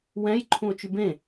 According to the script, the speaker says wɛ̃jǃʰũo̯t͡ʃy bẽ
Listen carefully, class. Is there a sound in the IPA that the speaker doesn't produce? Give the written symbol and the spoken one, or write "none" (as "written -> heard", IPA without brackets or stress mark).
none